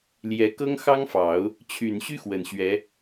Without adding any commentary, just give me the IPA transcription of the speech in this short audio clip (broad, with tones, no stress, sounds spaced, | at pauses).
l j ɛ˧˥ k ɤ˥ ŋ x ɑ˥ ŋ f ɑ˨˩˦ ʊ̯ | t͡ɕʰ y˨˩ n ɕ y˥ x w ə˨˩ n ɕ ɥ ɛ˧˥